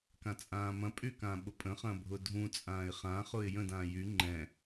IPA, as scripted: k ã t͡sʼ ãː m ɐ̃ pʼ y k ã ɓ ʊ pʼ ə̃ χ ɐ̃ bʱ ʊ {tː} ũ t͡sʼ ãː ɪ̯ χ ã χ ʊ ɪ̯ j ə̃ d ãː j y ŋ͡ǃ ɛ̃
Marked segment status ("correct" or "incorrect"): incorrect